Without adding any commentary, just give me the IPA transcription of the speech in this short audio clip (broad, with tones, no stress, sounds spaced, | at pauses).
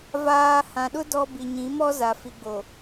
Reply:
v aː˨ h ã˨ ɗ ʊ˦ d ɔ˦ b i˨ ɲ ĩ˨˦ m ɔ˦ z a˨ f i˨ ɡ͡b o˨